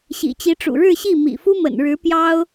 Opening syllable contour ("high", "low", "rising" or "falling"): low